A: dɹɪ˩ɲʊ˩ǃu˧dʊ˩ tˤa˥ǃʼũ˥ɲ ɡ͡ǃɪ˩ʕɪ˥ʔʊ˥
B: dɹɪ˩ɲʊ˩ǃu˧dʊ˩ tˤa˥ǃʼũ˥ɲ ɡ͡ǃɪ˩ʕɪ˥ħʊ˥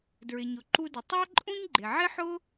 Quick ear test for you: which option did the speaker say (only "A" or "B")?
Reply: B